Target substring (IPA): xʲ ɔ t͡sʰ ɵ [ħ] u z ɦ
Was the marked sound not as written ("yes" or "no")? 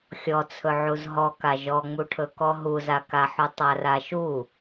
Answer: yes